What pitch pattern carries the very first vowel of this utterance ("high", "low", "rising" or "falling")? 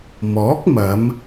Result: rising